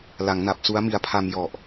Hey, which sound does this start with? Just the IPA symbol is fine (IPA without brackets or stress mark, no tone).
l